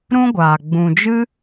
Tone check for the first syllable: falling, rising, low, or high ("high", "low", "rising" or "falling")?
high